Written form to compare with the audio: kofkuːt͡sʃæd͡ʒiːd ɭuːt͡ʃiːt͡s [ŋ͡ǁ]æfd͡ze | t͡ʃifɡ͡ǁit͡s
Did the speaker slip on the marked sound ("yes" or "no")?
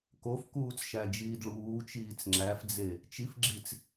no